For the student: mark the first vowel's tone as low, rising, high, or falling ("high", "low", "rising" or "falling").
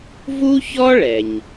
high